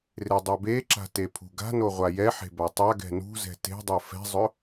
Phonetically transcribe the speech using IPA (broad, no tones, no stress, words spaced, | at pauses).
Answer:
redˤɛbeǁa̤ tepʰṳɡa̤no ʁʷajɛħe̤ batˤaɡɛ̤ nṳzɛ̤ te̤dˤo fɛ̤zˤɵ